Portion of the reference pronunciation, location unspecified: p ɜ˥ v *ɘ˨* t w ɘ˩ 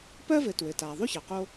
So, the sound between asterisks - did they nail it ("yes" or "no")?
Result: yes